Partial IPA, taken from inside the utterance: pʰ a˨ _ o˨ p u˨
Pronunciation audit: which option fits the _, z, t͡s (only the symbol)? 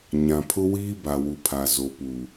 z